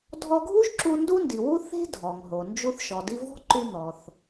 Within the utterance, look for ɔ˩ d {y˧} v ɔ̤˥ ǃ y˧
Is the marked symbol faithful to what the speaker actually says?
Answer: no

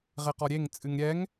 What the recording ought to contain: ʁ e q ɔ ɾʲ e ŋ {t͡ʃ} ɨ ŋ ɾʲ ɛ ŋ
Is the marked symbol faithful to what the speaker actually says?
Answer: no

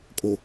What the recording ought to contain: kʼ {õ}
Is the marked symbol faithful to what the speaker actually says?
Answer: no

